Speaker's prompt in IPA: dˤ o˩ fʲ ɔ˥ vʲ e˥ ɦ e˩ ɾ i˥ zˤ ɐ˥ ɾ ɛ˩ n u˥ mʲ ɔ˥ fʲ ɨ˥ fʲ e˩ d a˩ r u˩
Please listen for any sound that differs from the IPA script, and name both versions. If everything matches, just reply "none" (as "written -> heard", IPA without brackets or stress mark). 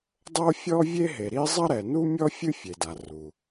o˩ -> o˥